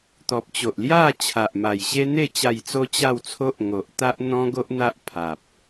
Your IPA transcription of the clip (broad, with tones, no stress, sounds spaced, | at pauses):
t̪ ɔ˨ p̚ t͡ɕ o˨ ʔ l j a˥˧ t͡ɕʰ a˨ ʔ m a˨˩ j ɕ e˦ n̪ e˥˧ t͡ɕ a˨˩ j t͡s o˧ t͡ɕ a˥˧ w t͡sʰ o˦ ʔ ŋ o˨ ʔ t̪ a˦ ʔ n̪ ɔ̃˦ ɡ o˦ ʔ n̪ a˦ ʔ pʰ a˨ p̚